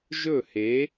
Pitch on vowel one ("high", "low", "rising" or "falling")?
falling